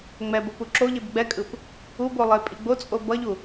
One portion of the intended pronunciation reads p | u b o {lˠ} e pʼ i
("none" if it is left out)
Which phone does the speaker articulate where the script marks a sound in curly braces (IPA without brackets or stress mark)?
lˠ